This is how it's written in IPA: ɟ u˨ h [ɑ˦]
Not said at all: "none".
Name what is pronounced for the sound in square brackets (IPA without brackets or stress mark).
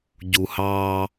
ɑ˦